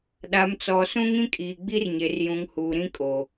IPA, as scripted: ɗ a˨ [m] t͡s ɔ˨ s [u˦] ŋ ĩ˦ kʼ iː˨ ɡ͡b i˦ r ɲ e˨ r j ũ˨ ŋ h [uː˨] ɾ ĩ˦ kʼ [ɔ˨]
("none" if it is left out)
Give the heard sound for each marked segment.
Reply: m, ũ˦, uː˨, o˨

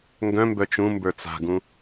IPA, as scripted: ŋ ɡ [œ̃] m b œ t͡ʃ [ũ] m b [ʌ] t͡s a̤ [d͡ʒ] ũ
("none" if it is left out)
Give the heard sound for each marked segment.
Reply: œ̃, ũ, ə˞, ɡ

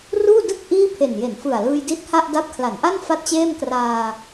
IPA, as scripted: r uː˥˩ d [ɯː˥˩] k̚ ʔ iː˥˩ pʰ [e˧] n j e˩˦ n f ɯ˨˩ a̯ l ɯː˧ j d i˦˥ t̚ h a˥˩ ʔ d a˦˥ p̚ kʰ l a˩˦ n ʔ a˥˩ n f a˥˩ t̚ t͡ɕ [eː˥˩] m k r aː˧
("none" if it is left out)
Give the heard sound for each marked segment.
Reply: ɯ˥˩, e˨˩, eː˥˩

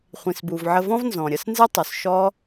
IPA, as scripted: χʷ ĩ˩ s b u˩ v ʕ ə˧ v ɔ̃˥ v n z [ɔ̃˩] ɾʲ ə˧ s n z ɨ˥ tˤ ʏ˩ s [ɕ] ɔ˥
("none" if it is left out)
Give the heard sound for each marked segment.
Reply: ɔ̃˩, ʃ

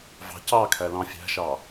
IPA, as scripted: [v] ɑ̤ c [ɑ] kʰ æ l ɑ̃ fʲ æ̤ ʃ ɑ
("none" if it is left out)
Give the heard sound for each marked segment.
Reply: v, ɑ

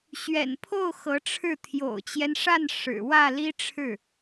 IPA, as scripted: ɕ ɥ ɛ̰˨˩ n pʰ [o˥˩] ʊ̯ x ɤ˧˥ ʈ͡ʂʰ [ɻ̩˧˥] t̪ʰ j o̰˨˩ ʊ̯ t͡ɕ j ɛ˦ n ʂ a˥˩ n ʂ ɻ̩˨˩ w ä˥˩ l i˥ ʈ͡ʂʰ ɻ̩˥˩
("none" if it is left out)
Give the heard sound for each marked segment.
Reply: o˥˩, ɻ̩˥˩

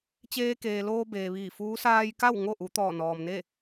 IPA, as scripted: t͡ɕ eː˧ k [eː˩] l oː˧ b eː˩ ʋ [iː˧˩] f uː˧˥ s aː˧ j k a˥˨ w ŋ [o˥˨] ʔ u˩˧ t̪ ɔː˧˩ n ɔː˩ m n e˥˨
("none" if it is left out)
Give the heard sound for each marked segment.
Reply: eː˩, iː˧˩, o˥˨

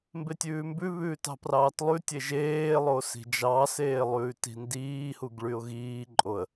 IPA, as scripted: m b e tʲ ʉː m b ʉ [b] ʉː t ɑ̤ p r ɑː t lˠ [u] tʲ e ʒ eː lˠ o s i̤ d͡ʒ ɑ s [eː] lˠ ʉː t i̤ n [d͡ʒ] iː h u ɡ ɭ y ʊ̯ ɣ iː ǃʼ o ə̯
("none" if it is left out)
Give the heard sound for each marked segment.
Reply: β, ʉ, eː, d

